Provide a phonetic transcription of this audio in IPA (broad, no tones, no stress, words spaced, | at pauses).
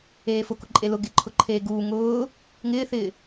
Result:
eːfʊkʊ ǃʼelʊ ɡɪǃʰʊ ǃʰeːɡuː ŋʊː | ŋɪːθɪː